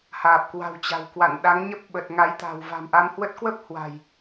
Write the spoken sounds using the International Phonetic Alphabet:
h aː˨˩ p̚ k w a̤˨˩ w t͡ɕ a̤˨˩ w k w a̰˧˨ n ɗ a˨˦ ŋ ɲ ə˦˥ p̚ ɓ ə˨˩ t̚ ŋ a˨˦ j t̪ a̤˨˩ w v a̤˨˩ m ʔ a˧ m h w ə˦˥ t̚ k w ə˦˥ p̚ h w a̤˨˩ j

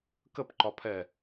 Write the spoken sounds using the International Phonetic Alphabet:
k ə p ǃ ɒ pʰ ɛ

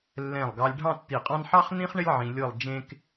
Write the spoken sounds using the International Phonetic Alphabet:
lː ɛ̃˧˩ lˠ ɡ ɑ˧ lʲ ɖʱ ɑ̃˥˧ tː i˧˩ qʼ ɑ̃˥ n ħ ɑ˥ χ n ĩ˥ χ ɳ ɪ˥ lʲ ʕ ĩ˧ lʲ ɤ˥˧ lˠ d͡ʒ ẽ˥ k

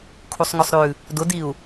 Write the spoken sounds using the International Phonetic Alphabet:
kʰ u sˤ ŋ ʊ sˤ ɾ ʉ | d ʊ d i u̯

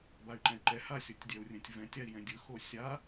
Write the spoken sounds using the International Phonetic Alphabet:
b a y̯ ǃ ɛ̃ y̯ ǃ ɛ h a sʲ ɤ tʲ dʲ ɛ u̯ rʲ ɛ̃ tʲ v ɛ̃ tʲ a i̯ j ɛ̃ dʲ ɯ x o sʲ a

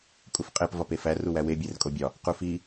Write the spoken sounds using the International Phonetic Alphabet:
kʼ u f qʼ e p v ɒ p e f æ r u w æ w e bʲ e r kʼ o bʲ ɒ | q u f i

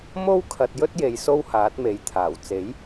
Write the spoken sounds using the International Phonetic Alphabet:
m o˥ w kʰ ɐ˧ t̚ j ɵ˥ t̚ j e˨ j s o˥ w h aː˨˥ t̚ m e˨˥ j t̪ʰ aː˨˩ w t͡s e˨˥ j

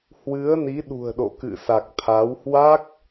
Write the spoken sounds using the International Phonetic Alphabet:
h w ɨ˨˦ ə̯ n i˨˦ ɗ ṳ˨˩ ə̯ ɗ o̰˧˨ k ɨ̰˧˨ s a˨˩ k̚ t̪ʰ a˨˦ w h w a˦˥ k̚

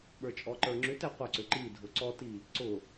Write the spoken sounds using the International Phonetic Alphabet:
ɓ ə˞ t͡ʃʼ ɔ ǃ ə˞ ŋ͡ǁ ʏ t ɛ qʷ ʌ ǀ ʏ ǃ i dʱ ʊ ǀ ɔ t i | ǀ ʊ

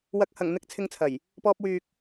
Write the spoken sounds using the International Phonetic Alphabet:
w ɐ˨ k̚ h ɐ˨˩ ŋ n̪ ɪ˧ k̚ t͡sʰ ɪ˧ ŋ t͡sʰ ɐ˨˩ j | p ɔː˧ p̚ w yː˨ k̚

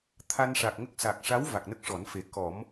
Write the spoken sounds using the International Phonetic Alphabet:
t̪ʰ a˧ n ʂ aː˨˩ k̚ ŋ ə˦˥ k̚ s a˨˩ k̚ ʂ a˧˥ w v a˨˩ k̚ n ə˦˥ k̚ ʂ ɔ˨˩˦ n f e˨˩ k ɔ˨˩˦ m

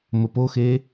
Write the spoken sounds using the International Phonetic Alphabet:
m ə p o x e

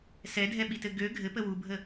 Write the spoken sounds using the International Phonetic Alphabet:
s ɛ dʱ ɛ ɓ i t ɘ ɡ ø ɡʱ ɘ p ə w u bʱ ə

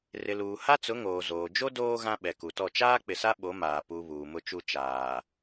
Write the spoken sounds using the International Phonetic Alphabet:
r ɪ˨ l uː˨ h a˦ t͡s ʊ˨˦ ŋ oː˨ z oː˨ d͡ʒ o˦ d oː˦ ɣ ã˦ ɓ ɛ˨ k u˨ t ɔ˦˨ t͡ʃ aː˦ k͡p ɪ˨ s a˦ ɓ o˨˦ m aː˨ p u˨ β uː˨ m ʊ˦ t͡ʃ u˦ t͡ʃ aː˨

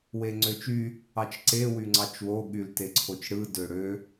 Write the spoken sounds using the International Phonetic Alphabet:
w e ŋ͡ǀ ø t͡ʃ y | ɑ t͡ʃ ǀ e w y ŋ͡ǀ ɑ t͡ʃ w o ɠ y l t e ǀʰ o t͡ʃ ɽ ɯ d ø ɽ ø

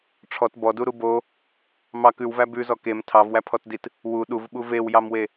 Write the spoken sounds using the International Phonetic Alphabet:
ʈ͡ʂʰ ɔ t b ɔ d u ɾ u b o | m ɑ k ʉ w v æ b ʉ z ɔ k e m tʰ ɑ v w æ pʰ ɔ t d i t | w u ɗ u v ɓ u v e w j ɑ m w e

